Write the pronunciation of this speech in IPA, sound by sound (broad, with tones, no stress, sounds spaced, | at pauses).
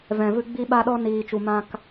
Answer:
v ɛ̃˨ v ɨ˧ ɡ͡b i˧ ɓ a˧ ɗ ɔ˧ n iː˨ t͡ʃ u˨ m ã˧ k